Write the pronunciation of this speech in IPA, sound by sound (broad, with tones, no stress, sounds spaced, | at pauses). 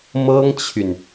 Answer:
m ɤ˥ ŋ t͡ɕʰ y˨ n